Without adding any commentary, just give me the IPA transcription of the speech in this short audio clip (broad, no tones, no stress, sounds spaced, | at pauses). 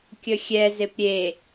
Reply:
kʲ ə xʲ ɛ z e p ɾʲ e